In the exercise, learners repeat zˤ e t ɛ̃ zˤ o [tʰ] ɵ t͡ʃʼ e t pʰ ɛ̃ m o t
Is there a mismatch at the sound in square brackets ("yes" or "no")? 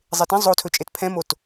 no